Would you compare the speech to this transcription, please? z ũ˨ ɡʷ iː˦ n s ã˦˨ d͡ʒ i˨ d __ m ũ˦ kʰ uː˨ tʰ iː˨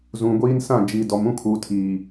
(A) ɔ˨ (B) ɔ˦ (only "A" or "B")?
A